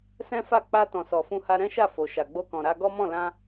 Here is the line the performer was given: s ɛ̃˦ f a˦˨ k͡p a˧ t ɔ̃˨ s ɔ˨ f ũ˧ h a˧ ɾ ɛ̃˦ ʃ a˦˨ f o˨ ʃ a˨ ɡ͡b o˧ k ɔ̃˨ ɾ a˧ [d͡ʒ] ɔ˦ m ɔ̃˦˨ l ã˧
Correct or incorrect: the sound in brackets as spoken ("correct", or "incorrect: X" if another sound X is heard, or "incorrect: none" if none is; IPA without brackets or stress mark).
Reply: incorrect: ɡ